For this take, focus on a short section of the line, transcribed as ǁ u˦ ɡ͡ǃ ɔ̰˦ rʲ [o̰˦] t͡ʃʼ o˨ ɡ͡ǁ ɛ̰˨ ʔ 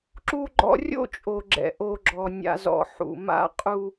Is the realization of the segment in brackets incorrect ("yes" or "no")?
no